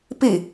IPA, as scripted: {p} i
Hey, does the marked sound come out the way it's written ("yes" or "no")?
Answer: yes